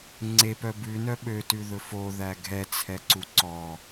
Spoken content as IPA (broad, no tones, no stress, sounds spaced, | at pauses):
ŋ͡ǀ e p œ b ʉ n œ ɓ ø t ʉ ð ɵ f o ð æ ɡʱ ɛ t͡sʰ ɛ ǀ u ǀ ɔ